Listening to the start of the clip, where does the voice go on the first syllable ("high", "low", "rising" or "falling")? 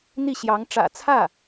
falling